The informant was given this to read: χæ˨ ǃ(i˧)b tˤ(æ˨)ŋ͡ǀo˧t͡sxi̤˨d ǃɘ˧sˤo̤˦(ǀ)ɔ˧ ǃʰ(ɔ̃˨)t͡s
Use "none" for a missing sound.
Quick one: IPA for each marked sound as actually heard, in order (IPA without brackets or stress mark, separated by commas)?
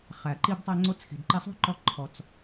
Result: i˧, æ˧, ǃ, ɔ˨